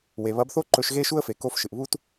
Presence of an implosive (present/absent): absent